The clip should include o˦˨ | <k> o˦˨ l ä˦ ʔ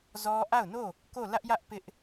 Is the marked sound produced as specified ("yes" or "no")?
yes